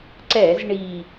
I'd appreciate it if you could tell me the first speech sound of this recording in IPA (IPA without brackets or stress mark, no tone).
ǀ